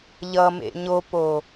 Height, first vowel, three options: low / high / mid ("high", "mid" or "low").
mid